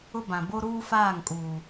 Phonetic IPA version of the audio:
ʊ˦ b ã˨ b o˦ ɾ uː˦ f aː˦˨ ŋ kʼ uː˨

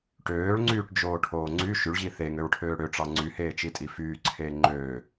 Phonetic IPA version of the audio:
ʈ øː ɭ ŋ͡ǀ yː ʈ d͡ʒ oː ʈʰ oː ŋ͡ǀ y ʃ y ɭ ʑ i θ e ŋ ø ɹ ʈʰ øː ɽ ø ʈ͡ʂ ɑ ŋ͡ǀ y h eː t͡ʃ i tʼ i f yː ǀʰ eː ŋ͡ǃ øː

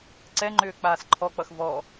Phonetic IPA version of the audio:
ǀ ɛ ŋ͡ǃ ʏː k͡p aː s ǃʰ ɔ k͡p ʌ x v ɔ

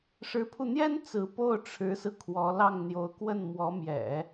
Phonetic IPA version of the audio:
ʂ ɻ̩˧˥ pʰ u˧ n̪ j ɛ˥ n t͡s ɹ̩˧˥ p o˥˩ ʊ̯ ʈ͡ʂʰ ɻ̩˧˥ s ɹ̩˧ kʰ w ɔ˧˥ l ɑ˥˩ ŋ n̪ j o˧˥ ʊ̯ k w ə˥˩ n m w ɔ˧˥ m j ɛ̰˨˩˦

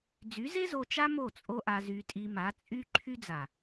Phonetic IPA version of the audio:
d͡z y˨˦ z e˦ z o˧ t͡ʃ a˦ m o˦˨ t͡sʼ o˦ ʔ a˧ z y˧ tʼ i˧ m a˨˦ t͡sʼ y˦ ǃʰ y˦ d͡z a˨

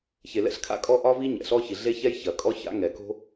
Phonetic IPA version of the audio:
ç e˩ l ɛ̰˥ ɬ kʰ a̰˥ kʼ ɔ˥ ʔ ɒ˥ v i˥ ɲ ɛ̰˩ ɬ ɔ˥ ç i˩ ɮ e˥ ç ɛ˥ j ç ɐ˩ kʼ ɔ˥ ç a̰˥ ŋ ɛ˩ k o̤˥

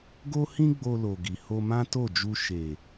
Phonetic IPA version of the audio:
ɡ o˦ h ĩ˦ ɡ͡b o˧ l o˨ ɡ i˨ h o˧ m ã˦ t o˦˨ d͡ʒ u˧ ʃ e˨

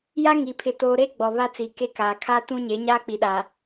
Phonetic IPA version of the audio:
j a˦ ŋ i˨ pʰ ɪ˨ t oː˨ ɾ e˦ ɡ͡b ɔ˨ β a˦ t͡s i˨ k e˦ k aː˨ kʰ aː˦ t ũ˦ ɲ e˨˦ ɲ aː˦ k͡p i˨ ɗ a˨

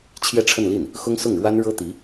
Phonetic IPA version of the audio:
t͡ɕʰ j ɛ˥˧ ʈ͡ʂʰ ə˥˧ n l i˥˩ n | x ʊ˥ ŋ s ʊ˥˩ ŋ ɻ w a˥ n ɻ ɤ˥ t̪ i˧˥

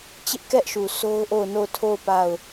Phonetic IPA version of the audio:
t͡ɕ ɪ˦ ʔ k ɛ˦ ʔ ʃ u˨ s o˦ ʊ̯ ʔ o˦˨ ʊ̯ n o˦˨ ʊ̯ tʰ o˦˨ ʊ̯ p a˦˨ ʊ̯

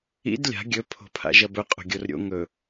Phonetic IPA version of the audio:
ḭ d lʲ a̤ ɡʲ ɵ pʰ o̤ pʰ a̰ ʒ ɐ b ɵ qʼ o̤ ɡʲ o r ɾʲ o̰ ŋ ɵ

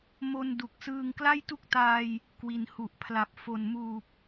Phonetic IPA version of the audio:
m o˧ n d u˨˩ k̚ s ɯː˧ ŋ k l a˥˩ j t u˥˩ k̚ t aː˧ j | k w i˨˩ n h u˨˩ ʔ pʰ l a˨˩ p̚ f o˨˩ n m uː˨˩ p̚

